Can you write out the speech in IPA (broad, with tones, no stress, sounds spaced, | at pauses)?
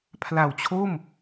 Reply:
pʰ l a˨˩ w t͡ɕʰ o˥˩ m